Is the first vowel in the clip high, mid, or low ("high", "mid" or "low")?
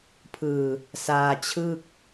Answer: high